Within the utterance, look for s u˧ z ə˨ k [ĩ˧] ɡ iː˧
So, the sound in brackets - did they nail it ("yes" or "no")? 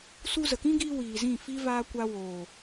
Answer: no